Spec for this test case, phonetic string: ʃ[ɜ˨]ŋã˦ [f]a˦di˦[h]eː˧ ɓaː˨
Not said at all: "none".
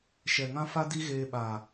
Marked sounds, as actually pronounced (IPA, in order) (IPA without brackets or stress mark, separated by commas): ɛ˨, f, ɣ